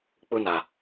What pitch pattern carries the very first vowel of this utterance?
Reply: high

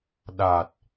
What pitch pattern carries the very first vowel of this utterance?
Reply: low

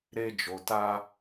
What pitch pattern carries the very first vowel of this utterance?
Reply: high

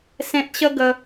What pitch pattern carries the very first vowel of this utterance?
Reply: high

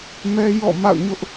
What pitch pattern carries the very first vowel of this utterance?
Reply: high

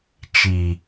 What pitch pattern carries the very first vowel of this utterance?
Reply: low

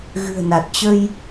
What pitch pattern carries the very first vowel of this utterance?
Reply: low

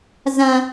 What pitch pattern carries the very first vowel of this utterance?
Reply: high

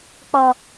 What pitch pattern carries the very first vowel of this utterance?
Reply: low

